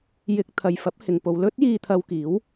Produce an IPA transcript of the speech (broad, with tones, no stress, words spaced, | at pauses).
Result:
jɪ˧k̚t̪ʰɐ˨jfɐ˨˥p̚ hɪ˨ŋ po˨wlɵ˥t̚jiː˧ t̪ʰɐ˧wkiː˨˥w